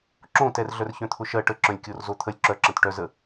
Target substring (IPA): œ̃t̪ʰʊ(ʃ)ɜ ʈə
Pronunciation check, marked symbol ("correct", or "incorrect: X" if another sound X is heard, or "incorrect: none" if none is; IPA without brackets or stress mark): correct